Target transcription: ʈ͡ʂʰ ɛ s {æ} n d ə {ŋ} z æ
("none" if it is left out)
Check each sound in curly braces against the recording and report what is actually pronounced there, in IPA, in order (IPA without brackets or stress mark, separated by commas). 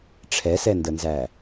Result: ɛ, n